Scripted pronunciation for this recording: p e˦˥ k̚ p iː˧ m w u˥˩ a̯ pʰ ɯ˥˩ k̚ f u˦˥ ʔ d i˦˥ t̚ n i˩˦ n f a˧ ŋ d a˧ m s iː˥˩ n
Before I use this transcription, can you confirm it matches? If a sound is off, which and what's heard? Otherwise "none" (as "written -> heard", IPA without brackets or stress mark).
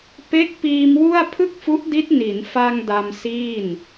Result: none